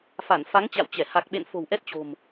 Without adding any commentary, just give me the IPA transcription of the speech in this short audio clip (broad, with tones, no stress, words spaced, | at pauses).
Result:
fa˧˩nfa˨˦ŋt͡ɕa̰˧˨wt͡ɕɛ˧˩ ha˨˩k̚ɓḛ˧˨n fo̤˨˩wʔɛ˦˥t̚t͡ɕo̤˨˩m